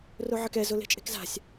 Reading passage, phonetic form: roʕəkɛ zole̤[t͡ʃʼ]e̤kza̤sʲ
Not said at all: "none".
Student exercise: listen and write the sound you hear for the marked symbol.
t͡ʃʼ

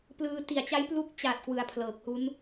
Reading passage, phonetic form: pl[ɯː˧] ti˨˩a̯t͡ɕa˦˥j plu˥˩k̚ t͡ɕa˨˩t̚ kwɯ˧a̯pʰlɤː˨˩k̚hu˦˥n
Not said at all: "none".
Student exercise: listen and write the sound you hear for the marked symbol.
ɯː˧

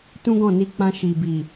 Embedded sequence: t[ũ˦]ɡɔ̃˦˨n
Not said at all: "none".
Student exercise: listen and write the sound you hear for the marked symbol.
ũ˦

